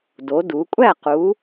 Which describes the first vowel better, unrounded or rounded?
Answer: rounded